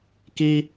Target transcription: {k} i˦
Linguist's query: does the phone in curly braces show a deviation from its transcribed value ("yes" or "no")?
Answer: no